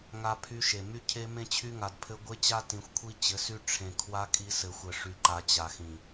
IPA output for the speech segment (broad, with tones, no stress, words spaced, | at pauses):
ŋa˦pʰy˦ʃe˨ my˦cʰe˦ mẽ˦t͡ɕʰy˦ŋa˨dpʰɘ˦ ɡʷe˦t͡ɕa˦ tĩ˨xʷkʷʰi˦t͡ɕɘ˨˦sy˦ ʈ͡ʂʰẽ˨ kʰwa˦ kʼi˦sɘ˨ xʷɘ˨ʂy˨ ǃa˨ t͡ɕa˨ xĩ˨